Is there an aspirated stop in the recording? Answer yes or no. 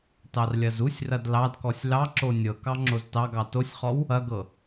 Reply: no